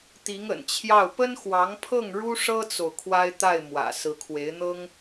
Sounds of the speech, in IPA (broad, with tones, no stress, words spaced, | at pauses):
t̪i˧˥ŋə̰˨˩nt͡ɕʰjɑ˥˩ʊ̯ pə˥nxwɑ˧˥ŋpʰɤ˥˩ŋ ɻu˥ʂɤ˥t͡so˨ʊ̯ kʰwa˥ɪ̯t̪a˥˩ɪ̯mwä̰˨˩ sɹ̩˧˥kʰwe˧˥ɪ̯n̪ɤ˥ŋ